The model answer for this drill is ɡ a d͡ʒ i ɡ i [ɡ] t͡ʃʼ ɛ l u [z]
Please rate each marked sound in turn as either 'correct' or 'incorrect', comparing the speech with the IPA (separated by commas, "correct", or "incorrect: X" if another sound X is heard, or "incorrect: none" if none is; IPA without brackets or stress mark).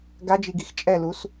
incorrect: x, incorrect: s